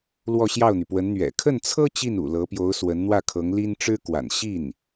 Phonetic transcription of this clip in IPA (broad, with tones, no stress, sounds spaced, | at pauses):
l w ɔ˥˧ ɕ j ɑ˥˩ ʊ̯ n̪ y˩ p w ə˧˥ n n̪ ɥ ɛ̰˨˩ kʰ ə˥˩ n t͡sʰ ɤ˥ t͡ɕ i˥˩ n ṵ˨˩ l ɤ˧˥ p j o˧˥ ʊ̯ s w ə˧˥ n n̪ w ä˥˩ kʰ ɤ˧˥ ŋ l i˥ n ʈ͡ʂ ɻ̩˥ k w a̰˨˩ n ɕ i˥˩ n